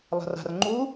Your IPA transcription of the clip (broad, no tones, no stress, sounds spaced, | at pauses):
lˠ a̤ r a̤ r ŋ͡ǃ u